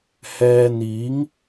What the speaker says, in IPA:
hɛː˧n̪iː˨˥ŋ

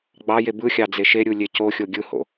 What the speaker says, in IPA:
ɡ͡bɑje bɯxʲɑ d͡zeʃeɾʲu lʲecoxʲo ɡʲɯho̰

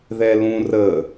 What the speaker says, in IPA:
ðɛlũ rə

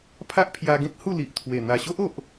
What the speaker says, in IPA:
pʰa˦ʔpʰja˧ɡẽ˦t̚ hu˥˧li˨ʔt̪ʰwe˨˩ n̪a˨˩ɕo˦ʔ o˨ʔ

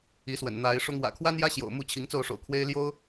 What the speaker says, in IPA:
i˨˦swə̰˨˩n n̪a˨˦ɪ̯ʂʊ˦ŋ wä̰˨˩kʰwa˦njä˦ ɕjo̰˨˩ʊ̯ mu˥˨t͡ɕʰi˨˦ŋt͡so˥˨ʊ̯ʂo̰˨˩ʊ̯ kʰwe˦ɪ̯ ljo˦ʊ̯

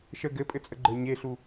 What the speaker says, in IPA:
ʃə ɡɘpʼɘt͡sʼəɡ͡ǃə˞ ɲeɬu

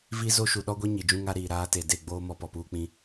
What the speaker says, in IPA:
vi˦zo˦ ʃu˨ɗɔ˦ɡʷe˦ ɲi˨d͡ʒũ˦ŋa˦ ɾiː˨ɾaː˦te˨ de˦˨ɡ͡boː˦ mɔ˦pɔ˨puː˦k͡pĩ˦

